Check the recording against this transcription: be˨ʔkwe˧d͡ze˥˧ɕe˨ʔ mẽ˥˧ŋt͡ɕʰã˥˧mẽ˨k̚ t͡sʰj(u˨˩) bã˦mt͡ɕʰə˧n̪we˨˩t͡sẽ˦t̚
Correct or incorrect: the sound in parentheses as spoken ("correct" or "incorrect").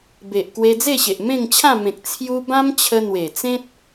incorrect